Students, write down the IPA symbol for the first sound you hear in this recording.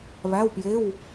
β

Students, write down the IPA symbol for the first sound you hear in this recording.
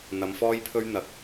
n̪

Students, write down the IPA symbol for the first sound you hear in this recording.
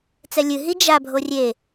t͡s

